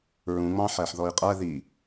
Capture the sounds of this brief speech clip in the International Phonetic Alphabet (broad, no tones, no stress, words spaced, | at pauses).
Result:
ɹũŋ͡mɑ̃ ħæħðɔi̯qʼæ ði